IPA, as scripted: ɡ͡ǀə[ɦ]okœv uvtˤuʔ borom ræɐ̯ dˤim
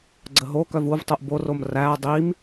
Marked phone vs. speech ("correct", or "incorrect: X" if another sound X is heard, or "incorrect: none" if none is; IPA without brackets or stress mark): correct